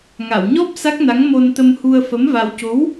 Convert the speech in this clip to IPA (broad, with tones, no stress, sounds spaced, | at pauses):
ŋ a˨˩˨ w ɲ ɔ˦˥ p̚ s a˦˥ k̚ n a˧˥ ŋ m o˧ n t̪ ə˧ m h u˧ ə̯ f ə˧˥ m v a˧ w c o˧˥ w